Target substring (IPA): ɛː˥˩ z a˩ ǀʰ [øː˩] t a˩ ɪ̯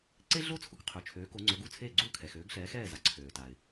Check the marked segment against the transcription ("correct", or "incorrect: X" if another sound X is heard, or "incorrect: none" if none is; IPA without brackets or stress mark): correct